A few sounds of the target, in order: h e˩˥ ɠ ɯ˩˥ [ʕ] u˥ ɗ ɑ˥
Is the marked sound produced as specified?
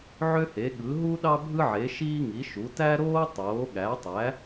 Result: no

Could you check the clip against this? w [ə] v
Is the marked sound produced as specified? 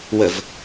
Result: yes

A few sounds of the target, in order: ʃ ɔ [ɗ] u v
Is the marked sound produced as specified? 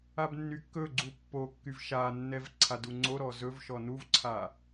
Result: no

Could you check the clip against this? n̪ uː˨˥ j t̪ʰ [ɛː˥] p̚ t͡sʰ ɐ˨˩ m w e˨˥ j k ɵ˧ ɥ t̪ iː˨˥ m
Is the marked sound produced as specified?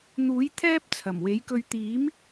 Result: yes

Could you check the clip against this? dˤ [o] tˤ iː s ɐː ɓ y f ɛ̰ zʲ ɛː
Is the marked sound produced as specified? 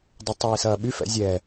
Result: yes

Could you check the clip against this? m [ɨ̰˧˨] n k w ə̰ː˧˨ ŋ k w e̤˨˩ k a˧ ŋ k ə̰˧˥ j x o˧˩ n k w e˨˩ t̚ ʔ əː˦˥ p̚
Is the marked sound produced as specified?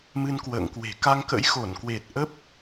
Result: no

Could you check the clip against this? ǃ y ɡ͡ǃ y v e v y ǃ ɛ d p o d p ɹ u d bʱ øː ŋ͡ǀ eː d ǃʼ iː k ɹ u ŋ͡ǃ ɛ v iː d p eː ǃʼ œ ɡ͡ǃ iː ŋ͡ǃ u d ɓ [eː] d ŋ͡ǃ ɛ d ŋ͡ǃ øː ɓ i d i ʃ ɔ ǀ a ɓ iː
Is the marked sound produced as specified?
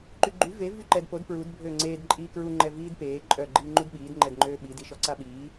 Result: no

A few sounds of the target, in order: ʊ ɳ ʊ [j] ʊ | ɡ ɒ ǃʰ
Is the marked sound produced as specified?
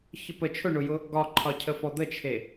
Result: yes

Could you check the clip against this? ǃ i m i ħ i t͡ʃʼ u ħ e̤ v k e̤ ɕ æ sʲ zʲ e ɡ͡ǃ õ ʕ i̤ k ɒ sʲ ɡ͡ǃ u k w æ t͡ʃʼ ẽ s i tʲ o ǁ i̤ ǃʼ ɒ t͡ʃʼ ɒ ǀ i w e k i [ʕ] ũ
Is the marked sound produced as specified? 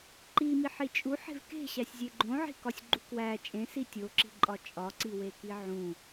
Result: yes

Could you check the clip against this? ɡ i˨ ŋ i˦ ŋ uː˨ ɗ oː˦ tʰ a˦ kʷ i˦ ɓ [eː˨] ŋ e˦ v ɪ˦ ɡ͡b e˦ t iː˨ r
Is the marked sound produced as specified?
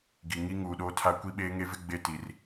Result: no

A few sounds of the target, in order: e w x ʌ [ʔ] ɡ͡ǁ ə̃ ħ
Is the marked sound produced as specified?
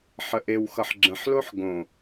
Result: no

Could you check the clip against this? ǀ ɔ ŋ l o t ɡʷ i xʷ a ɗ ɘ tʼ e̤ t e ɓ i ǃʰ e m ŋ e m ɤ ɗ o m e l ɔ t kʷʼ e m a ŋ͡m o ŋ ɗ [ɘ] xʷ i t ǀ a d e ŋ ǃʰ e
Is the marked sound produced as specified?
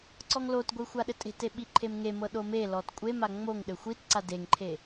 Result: yes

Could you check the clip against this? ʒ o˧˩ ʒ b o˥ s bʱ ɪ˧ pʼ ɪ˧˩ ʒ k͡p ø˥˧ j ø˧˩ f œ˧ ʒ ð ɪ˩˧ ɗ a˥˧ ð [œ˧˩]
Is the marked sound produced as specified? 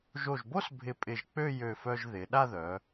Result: no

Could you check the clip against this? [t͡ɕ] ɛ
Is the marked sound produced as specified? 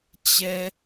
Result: yes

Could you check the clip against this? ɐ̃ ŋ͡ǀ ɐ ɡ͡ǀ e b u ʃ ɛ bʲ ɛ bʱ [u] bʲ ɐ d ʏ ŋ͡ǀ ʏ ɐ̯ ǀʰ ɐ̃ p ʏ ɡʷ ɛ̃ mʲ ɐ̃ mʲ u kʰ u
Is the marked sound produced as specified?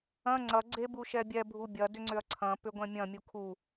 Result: yes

